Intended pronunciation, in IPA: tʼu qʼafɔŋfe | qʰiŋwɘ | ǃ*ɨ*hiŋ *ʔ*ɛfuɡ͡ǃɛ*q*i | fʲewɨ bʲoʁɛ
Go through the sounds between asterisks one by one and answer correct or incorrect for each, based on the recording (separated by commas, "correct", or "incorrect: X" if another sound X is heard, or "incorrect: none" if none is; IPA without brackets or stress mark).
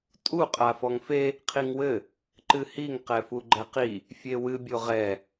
correct, incorrect: q, correct